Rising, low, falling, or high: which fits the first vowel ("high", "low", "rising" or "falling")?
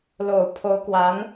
low